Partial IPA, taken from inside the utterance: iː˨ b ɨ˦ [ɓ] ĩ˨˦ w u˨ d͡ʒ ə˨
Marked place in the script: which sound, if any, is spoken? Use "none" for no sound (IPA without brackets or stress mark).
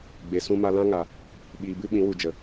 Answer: ɓ